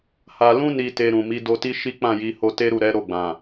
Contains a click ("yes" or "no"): no